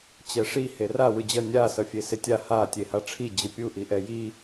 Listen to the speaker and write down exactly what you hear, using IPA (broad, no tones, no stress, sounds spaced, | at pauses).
t͡ɕ ɛ ʂ i h e r a w ɯ d͡ʑ ʌ nʲ a s ʌ fʲ e s e tʲ a h a tʲ e h a ʈ͡ʂʰ i d͡ʑ ɯ pʲ u ʔ i ʔ ɛ j i